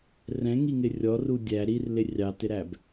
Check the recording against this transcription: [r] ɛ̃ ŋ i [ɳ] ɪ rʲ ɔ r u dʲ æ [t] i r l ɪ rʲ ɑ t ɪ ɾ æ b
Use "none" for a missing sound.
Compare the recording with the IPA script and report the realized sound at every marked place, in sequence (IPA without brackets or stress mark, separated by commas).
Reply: r, ŋ, ɾ